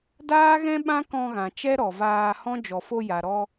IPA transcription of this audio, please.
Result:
d aː˦ ɣ ɛ̃˦ ɓ ã˦ k ɔ̃˧ ɣ ã˨ t͡ʃ ɛ˦ ɾ ɔ˨ v aː˧ h ɔ̃˦ d͡ʒ ɔ˨ f o˧ j a˨ ɾ ɔ˧

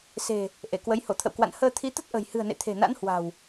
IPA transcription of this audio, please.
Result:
s e̤˨˩ | ʔ e˧˩ k w ə˨˦ j h o˧˩ t̪ʰ ə̰˧˨ w k w a̰˧˨ n h əː˧ t̪ʰ i˨˦ t̪ ə˦˥ t̚ ʔ ə̤˨˩ j h ɨ̤˨˩ ə̯ n ḛ˧˨ t̪ʰ e̤˨˩ n a̰˧˥ n h w a̤˨˩ w

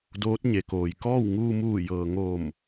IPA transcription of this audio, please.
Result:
d oː˧˥ t̚ ɲ e˩ k oː˩ j k ɔː˥˨ w ŋ uː˧ m uː˧˩ j ɤː˩ ŋ oː˧˩ m

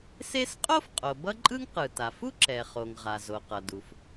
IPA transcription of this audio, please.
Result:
s e˥ s qʼ o˥ f qʼ o˩ b ʌ˥ ǃʼ ɯ˥ ŋ q ɯ˩ t a˩ f u˥ ǁ ɛ˩ χ o˩ ŋ ʁ a˩ z o˩ q ʌ˩ d u˩ f

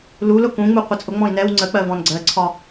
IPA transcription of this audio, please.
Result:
l u l ʊ k ũ ŋ͡m u qʷ ə t͡sʼ ʊ ŋ͡m ɔ̃ i̯ n ɛ w ŋ͡ǀ ə k͡p ɜ v ɔ̃ n ɡ͡ǀ ɜ ǀʰ ɒ

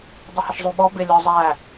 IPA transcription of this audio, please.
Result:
dˤ ə h ɪ ʃ zˤ u ɓ ɔ b ɪ lʲ ɔ zˤ æ

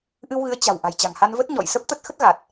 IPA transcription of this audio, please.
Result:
ʔ ɨ˧ w ɣ ɨ˨˦ ə̯ t͡ɕ a̤˨˩ w ʔ a̤˨˩ j t͡ɕ a̤˨˩ ŋ h a˧ n v ə˦˥ t̚ ɲ ɔ̰˧˨ j s ə˦˥ p̚ t̪ ə˦˥ t̚ x ə˦˥ t̚ ɣ a˨˩ t̚

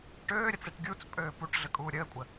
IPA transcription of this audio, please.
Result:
ʈ øː ɾʲ ə t͡s e ʈ ɡʲ u t͡s pʼ øː p u ʈ ɮ ə kʼ uː ɾʲ əː kʷʼ ə

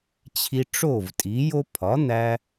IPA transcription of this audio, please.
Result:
t͡ɕʰ i˧ ʈ͡ʂ o˥˩ v tʼ i˩˥ j o˥ pʰ ɒ˩˥ n̪ æ˧

